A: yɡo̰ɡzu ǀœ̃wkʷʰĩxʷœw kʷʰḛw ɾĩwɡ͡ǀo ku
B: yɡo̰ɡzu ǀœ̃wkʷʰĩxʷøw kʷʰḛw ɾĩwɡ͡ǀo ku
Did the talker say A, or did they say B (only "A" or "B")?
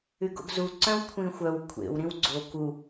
A